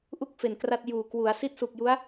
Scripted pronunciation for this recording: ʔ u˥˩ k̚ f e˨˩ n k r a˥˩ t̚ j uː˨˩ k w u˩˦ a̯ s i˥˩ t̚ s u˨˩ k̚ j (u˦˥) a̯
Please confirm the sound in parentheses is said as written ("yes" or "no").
yes